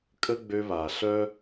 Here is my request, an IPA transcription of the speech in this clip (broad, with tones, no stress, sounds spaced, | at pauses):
kʼ ə˦ ɡ͡b ø˧ β a˨ ɬ œ˦